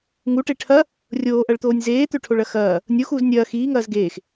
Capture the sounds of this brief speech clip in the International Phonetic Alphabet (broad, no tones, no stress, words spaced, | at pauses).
ŋuʈe ʈʰɐ | rʲoːʔɐɭt̪oːnʲ zeːt̪øʈʰoɭɐ xɐː | nʲoxuːz nʲɐː xiːŋɐːz ɡeːx